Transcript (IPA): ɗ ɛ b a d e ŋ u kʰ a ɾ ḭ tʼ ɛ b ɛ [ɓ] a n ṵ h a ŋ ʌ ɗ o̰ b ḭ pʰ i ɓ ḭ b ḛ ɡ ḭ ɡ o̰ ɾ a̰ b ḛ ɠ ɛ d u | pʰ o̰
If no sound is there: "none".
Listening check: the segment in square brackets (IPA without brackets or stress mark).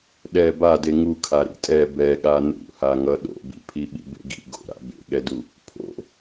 ɠ